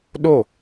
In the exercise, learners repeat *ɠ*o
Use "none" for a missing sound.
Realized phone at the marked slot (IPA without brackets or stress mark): ɗ